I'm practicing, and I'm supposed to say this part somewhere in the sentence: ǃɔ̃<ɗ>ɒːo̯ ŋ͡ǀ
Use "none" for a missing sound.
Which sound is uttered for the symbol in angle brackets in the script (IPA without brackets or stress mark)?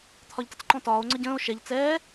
t